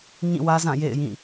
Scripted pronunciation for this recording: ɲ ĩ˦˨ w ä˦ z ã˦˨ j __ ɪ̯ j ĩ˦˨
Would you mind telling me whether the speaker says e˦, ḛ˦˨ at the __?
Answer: ḛ˦˨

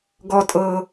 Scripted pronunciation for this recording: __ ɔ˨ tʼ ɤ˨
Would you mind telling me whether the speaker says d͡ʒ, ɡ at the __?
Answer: ɡ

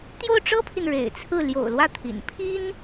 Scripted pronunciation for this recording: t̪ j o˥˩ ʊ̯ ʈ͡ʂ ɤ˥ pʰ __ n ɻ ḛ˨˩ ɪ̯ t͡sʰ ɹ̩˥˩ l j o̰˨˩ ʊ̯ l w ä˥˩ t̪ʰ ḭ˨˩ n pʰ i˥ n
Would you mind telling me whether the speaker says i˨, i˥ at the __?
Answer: i˨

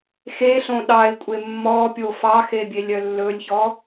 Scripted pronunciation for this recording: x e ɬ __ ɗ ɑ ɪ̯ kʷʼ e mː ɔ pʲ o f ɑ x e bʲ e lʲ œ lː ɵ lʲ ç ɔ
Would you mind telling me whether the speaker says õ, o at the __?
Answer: õ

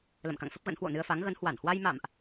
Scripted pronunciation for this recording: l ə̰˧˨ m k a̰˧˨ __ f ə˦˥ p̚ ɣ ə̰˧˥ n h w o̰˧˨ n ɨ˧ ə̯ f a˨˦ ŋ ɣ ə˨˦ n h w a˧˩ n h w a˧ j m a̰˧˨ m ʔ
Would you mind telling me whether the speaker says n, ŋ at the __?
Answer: ŋ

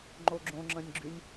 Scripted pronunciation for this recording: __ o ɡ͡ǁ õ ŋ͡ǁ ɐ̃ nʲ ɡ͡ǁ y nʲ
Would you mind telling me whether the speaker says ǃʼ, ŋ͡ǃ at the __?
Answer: ŋ͡ǃ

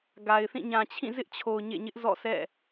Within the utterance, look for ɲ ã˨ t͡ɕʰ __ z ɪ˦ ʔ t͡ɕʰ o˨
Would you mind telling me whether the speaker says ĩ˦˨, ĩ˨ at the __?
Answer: ĩ˦˨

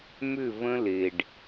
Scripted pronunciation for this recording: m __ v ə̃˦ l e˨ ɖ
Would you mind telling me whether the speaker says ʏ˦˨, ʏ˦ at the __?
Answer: ʏ˦˨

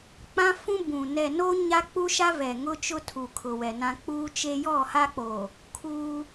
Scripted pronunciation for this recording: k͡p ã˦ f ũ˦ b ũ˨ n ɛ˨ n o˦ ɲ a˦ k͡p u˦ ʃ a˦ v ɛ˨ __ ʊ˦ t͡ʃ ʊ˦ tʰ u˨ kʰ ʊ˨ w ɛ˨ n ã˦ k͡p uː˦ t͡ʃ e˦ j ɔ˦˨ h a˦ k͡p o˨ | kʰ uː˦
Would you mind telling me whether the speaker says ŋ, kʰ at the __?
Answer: ŋ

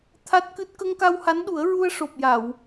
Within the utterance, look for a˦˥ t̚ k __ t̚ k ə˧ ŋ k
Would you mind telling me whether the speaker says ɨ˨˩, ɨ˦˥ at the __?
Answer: ɨ˦˥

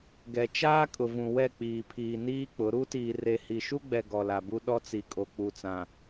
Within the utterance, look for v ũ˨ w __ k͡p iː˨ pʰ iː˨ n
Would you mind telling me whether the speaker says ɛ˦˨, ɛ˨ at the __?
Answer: ɛ˦˨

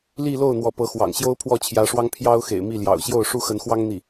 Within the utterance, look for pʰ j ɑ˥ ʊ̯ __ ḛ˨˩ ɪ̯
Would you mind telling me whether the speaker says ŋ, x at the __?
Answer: x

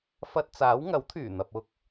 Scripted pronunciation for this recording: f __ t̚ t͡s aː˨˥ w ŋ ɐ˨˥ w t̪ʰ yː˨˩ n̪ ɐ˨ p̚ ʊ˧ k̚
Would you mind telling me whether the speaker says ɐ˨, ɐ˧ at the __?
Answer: ɐ˧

